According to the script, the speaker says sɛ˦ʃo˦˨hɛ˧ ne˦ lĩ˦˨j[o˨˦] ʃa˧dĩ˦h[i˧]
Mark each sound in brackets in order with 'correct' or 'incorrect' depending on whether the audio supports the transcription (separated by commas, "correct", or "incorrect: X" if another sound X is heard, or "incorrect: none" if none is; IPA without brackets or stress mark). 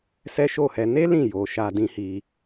incorrect: o˨, correct